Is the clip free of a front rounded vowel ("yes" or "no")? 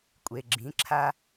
yes